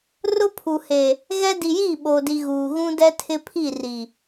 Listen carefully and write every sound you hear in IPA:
r ʊ˦ pʰ u˨ h e˨ | ɣ ɛ˦ d i˨ j iː˦˨ ɓ oː˨ d i˨ ɣ uː˨ ɣ ũ˦ d ɛ˦ tʰ ɪ˦ pʰ i˦˨ r i˨

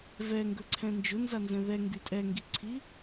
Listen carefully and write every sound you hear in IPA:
v ɛ ŋ ɡ ɵ ǀʰ ɛ̃ n d͡ʒ ʊ n z a n z ɛ̃ ð ɛ ŋ ɡ y tʼ ɛ ŋ ɡ i ǀʰ i

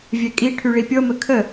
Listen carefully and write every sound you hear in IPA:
vʲ ɛ kʼ i ʈʰ y ɭ i pʲ ɤ m ə kʰ ə

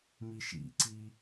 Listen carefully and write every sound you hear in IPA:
m i ʃ ḭ ǀ i

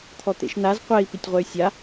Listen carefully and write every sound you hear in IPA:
t̪ʰ ɔ t̪ ḛ ʃ n a z qʷ ɛ i̯ p i tʲ ʁʷ ɛ y̯ sʲ a

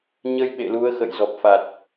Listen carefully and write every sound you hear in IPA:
ɲ ə˧ j ɓ ḛ˧˨ l u˨˦ ə̯ x ə̰˧˨ j z ɔ˨˩ p̚ f a˨˩ t̚

